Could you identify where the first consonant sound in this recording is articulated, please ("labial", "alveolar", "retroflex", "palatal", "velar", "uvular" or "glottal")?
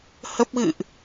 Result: glottal